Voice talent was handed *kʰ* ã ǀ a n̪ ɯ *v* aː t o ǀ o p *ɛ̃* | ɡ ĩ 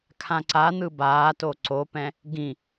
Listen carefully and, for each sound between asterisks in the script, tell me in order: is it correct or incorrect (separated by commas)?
correct, incorrect, correct